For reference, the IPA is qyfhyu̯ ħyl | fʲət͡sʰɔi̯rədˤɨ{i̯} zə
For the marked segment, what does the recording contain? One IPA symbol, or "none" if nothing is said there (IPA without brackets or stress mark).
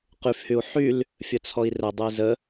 i̯